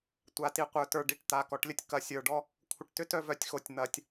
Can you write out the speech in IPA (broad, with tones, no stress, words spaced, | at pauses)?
tʷa˨ti˨qʷə˞˨tə˞˨ ɖi˨ʈ t̪a˨kɔ˨ʈlʲə˦tʲ kɐ˨sʲə˞˨ɖɔ˦ | kʷʰə˨ʈtʏ˦tœ˦vœ˨tʲ xo˨tʲn̪ɐ˨tʲ